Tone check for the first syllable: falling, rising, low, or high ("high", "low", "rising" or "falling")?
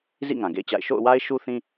falling